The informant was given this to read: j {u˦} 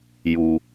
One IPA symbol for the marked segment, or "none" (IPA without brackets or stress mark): u˨